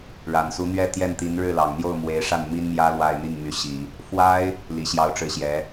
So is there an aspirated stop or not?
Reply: no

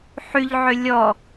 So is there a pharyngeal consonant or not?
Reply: yes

